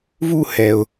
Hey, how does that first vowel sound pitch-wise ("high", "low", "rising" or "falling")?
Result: falling